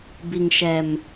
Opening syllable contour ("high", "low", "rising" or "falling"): low